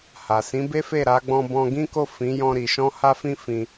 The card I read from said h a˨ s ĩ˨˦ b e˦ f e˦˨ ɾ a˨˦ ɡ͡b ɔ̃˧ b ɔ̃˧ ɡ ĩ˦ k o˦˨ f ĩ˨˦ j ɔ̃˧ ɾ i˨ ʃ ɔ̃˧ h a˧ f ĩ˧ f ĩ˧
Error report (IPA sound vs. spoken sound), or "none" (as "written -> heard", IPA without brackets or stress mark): none